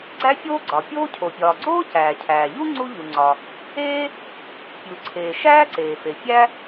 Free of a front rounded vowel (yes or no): yes